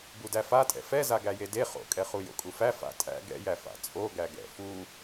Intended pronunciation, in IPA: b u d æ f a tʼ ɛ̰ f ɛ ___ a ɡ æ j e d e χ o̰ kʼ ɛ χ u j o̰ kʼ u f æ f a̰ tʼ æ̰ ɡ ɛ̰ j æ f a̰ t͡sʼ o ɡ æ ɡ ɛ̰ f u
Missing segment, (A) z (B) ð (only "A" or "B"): A